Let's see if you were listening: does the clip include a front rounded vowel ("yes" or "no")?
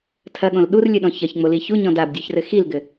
no